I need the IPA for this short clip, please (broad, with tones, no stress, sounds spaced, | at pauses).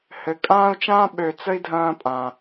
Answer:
h ɘ˨ kʼ ãː˥ u̯ t͡ʃ ãː˥ ɓ ø˨ t͡s ə˥ i̯ dʱ ɐ̃ː˦ pʼ ã˩